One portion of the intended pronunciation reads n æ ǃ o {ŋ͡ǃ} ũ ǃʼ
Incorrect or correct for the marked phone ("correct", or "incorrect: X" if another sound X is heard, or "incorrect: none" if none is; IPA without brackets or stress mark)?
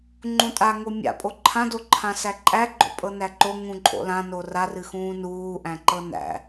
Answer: incorrect: ŋ